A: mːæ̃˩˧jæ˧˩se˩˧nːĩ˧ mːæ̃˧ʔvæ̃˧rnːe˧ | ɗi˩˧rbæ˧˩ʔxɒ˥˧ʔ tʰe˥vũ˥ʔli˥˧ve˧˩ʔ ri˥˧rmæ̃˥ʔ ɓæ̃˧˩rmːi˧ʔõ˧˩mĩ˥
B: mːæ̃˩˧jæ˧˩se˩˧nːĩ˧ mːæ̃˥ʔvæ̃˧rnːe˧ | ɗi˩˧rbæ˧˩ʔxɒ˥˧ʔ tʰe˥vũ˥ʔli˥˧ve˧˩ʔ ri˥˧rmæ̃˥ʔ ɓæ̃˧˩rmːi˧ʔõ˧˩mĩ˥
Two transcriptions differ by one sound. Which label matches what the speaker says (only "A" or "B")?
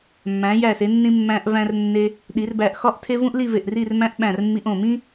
A